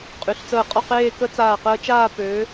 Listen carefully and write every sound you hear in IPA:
qʼ y˩˧ ɬ t͡s əː˧˩ qʼ ɔ˥˧ q eː˥˧ k ə˥ t͡s aː˧˩ q əː˧ t͡ʃ aː˥˧ p ø˩˧

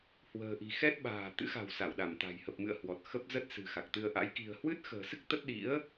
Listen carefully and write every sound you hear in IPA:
h w ə̤ː˨˩ ʔ i̤˨˩ x ɛ˦˥ t̚ ɓ a̤ː˨˩ t̪ ɨ̰˧˥ x a̤˨˩ w s a˧˩ w ɗ a˧˩ m t̪ a̤˨˩ j h ə˨˩ p̚ m ɨ̰˧˨ ə̯ h w ɔ˨˩ t̚ x ə˦˥ p̚ z ə˦˥ t̚ s ɨ̤˨˩ x a˨˩ k̚ t̪ ɨ˧ ə̯ ʔ a̰˧˥ j k i̤˨˩ ə̯ h w ɨ˦˥ t̚ x ə̤ː˨˩ s ɨ˦˥ k̚ t̪ ə˦˥ t̚ ɗ ḭ˧˥ ə̯

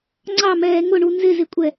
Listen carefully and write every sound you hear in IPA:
ŋ͡ǀ ɑ m ɛː ŋ ʊ ɳ u n z ɪ z ɪ kʷʼ ɛ

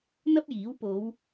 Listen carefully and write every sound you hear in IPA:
n̪ ɐ˥ p̚ j iː˨˥ w p o˨˧ w

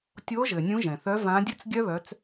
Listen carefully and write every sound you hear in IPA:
tʲ o˨˦ ʒ ɘ˩ nʲ ũ˨˦ ʒ ɛ̃˩ θ œ˨˦ v ã˨˦ dʲ ɘ˦˥ t͡s ɡʲ œ˦˥ β œ˨˦ t͡s

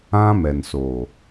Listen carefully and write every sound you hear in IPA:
ã˦ m ɛ˨ n s o˨

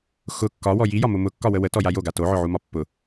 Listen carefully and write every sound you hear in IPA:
x ʊ kː ɒ w ɔ j i j ɒ m ʊ m ʊ kː ɒ w ə w ə t ɔ j a j o ɡ a t o ʕ ʊ ʕ u m ɒ pː ʊ

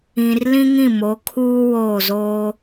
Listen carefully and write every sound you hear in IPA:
ĩ˨ r l ĩ˦ ŋ ĩ˦˨ m o˨˦ kʰ uː˦ w oː˦˨ z oː˦

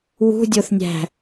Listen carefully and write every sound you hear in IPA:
w ṳ dʲ o θ nʲ æ̤

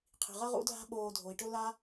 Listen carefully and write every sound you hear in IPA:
qʰ i̤˩ ʁ ɐ˥ ʁ ṵ˦ dʱ a̤˥ ɓ oː˨ dʱ o˩ i̯ ʈ ɵ˥ l a˥

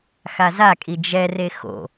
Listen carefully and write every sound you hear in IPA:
x a z a kʼ i d͡ʒ ɛ r e x o̰

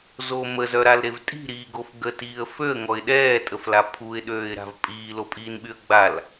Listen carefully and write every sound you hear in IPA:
z o m ə z œ ɾ a l ɾ e v tʼ i̤ ɾ iː ɡ o f ɡ ə t iː ə̯ f ø ə̯ ŋ ɔ ɪ̯ ɗ ɛː tʼ ə f l a pʰ u ɪ̯ ɗ øː ɪ̯ ɾ a̤ v pʼ iː l o pʼ iː n ɓ y ə̯ ɡ͡b a l

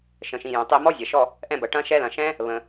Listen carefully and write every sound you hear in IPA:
ʃ ə̃˩ ʃ ĩ˩ j ɛ̃˩ tˤ i˦˨ m ɔ˦˥ zʲ ɐ˩ ʃ ɔ˦˨ | ʔ ɛ̃˦˨ b ɐ˩ ʈ ɐ̃˦˥ ʃ ɛ˦˥ l ɐ̃˩ ʃ ɛ̃˦˥ | β ə̃˩

